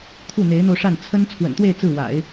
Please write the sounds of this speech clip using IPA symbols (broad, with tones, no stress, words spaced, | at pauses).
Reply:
t̪ʰu˥˩n̪e˧˥ɪ̯n̪o˧ʊ̯ʂa˥˩n t͡sʰə˥n t͡sʰwə̰˨˩nt̪we˥˧ɪ̯ t͡sɹ̩˥˩wa̰˨˩˦ɪ̯